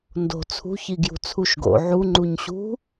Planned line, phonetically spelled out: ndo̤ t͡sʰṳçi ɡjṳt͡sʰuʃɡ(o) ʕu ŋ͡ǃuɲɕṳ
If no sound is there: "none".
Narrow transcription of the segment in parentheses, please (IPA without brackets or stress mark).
o̰